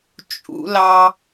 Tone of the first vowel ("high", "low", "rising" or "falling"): high